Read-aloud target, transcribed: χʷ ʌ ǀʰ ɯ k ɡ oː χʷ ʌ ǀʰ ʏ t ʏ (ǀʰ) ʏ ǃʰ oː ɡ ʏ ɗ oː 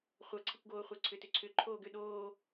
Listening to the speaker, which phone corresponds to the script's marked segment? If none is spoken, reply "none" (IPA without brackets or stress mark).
ǀʰ